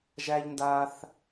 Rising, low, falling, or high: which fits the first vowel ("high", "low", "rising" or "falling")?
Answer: high